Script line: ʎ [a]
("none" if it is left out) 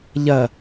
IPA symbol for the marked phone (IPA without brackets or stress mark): ɐ